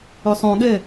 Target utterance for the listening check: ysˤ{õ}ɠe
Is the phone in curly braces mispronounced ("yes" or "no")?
no